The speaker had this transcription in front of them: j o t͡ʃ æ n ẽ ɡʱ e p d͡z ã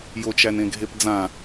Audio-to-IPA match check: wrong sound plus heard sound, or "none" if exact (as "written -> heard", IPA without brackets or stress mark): none